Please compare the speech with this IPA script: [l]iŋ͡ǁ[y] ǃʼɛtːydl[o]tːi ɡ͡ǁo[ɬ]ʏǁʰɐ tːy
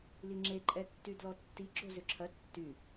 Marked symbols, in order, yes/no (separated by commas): yes, no, no, no